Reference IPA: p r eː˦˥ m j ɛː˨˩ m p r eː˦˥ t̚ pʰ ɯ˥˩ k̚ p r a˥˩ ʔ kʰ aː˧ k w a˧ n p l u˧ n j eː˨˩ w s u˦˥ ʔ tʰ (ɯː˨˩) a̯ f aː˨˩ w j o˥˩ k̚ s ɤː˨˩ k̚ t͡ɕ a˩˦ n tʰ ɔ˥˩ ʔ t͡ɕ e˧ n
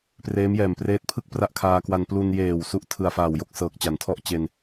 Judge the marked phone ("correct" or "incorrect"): incorrect